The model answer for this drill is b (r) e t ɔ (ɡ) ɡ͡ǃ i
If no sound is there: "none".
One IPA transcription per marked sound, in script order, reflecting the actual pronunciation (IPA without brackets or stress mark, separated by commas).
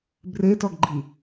r, ɡ